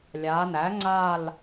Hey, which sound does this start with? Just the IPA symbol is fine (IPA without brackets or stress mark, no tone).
lʲ